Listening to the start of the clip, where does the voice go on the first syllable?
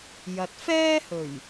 low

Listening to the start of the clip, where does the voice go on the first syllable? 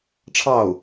falling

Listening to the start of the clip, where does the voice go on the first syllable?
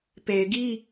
low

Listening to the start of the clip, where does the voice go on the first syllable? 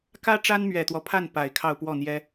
high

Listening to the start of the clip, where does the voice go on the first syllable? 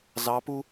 rising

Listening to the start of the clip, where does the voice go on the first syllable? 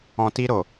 low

